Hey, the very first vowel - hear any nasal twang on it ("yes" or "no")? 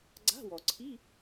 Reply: no